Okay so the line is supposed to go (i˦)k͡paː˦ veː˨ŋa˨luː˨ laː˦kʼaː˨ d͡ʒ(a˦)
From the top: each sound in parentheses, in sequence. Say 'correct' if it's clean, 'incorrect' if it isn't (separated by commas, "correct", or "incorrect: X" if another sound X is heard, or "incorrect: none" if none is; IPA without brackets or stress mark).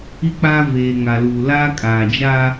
correct, correct